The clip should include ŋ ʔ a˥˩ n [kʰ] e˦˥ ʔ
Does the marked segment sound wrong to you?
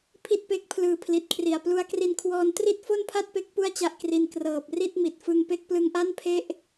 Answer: yes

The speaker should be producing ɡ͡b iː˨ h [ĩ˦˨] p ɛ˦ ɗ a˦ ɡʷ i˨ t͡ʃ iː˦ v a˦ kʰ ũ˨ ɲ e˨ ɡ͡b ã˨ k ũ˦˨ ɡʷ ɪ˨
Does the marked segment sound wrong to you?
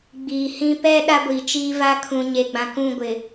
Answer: yes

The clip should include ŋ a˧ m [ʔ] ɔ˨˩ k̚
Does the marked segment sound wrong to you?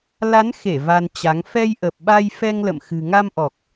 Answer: no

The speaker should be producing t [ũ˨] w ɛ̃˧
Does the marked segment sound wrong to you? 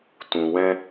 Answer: no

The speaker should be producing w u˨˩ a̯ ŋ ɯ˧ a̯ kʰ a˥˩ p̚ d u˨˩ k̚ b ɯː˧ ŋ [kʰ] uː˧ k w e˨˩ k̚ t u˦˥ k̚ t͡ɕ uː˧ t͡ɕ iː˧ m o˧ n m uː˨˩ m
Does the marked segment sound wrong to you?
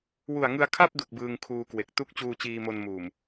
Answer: no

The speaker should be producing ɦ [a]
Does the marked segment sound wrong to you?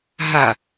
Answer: no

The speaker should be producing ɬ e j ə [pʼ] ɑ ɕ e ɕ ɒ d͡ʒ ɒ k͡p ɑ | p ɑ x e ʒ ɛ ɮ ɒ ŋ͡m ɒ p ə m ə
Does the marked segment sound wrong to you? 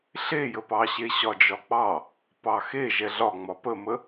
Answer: yes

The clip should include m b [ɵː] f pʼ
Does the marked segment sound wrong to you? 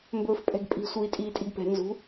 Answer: no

